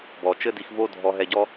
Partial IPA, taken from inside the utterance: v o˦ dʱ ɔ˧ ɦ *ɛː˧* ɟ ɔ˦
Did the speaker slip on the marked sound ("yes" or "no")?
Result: yes